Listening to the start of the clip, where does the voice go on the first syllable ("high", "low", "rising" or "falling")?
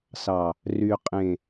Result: low